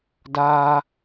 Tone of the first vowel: high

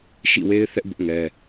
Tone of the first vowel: falling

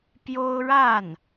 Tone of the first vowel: high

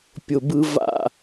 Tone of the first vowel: low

